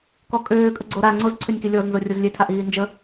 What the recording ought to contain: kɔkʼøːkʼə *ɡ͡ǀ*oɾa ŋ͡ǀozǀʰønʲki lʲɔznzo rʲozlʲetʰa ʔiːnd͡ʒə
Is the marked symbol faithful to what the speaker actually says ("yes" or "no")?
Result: yes